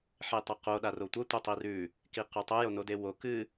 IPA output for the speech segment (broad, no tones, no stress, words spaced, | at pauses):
ħetˤɐqo ɗarotʷɐ tʷɐtˤirʉ | kiqʉtˤo jonodewo kɨ